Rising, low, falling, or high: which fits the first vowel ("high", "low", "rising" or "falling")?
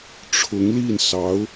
rising